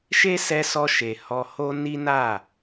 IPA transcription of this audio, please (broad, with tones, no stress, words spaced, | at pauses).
ʃe˦sɛ˧sɔ˧ʃe˨ hɔ˧ho˦ ni˦na˦˨